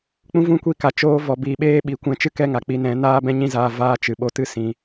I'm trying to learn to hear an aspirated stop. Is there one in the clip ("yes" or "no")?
no